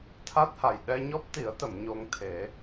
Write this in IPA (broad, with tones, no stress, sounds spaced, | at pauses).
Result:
t̪ʰ a˦˥ t̚ h a˨˩ j ɗ ɛ˧ ɲ ɔ˦˥ p̚ t̪ i˨˩˦ ə̯ t̪ ə˨˩˨ m ɲ o˧ ŋ t̪ʰ e˨˩˦